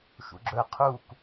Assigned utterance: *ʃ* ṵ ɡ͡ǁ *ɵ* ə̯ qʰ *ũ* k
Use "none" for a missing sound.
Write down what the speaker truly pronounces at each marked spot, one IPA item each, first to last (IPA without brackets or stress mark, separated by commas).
ʃ, ɵ, u